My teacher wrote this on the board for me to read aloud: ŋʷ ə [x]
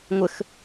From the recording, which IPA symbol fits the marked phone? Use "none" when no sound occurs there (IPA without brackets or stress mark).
x